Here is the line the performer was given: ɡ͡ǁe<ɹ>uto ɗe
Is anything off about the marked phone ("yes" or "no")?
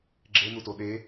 yes